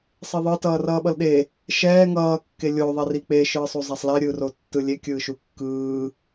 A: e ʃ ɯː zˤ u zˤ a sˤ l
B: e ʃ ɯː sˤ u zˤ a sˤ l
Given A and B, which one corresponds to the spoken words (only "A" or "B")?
B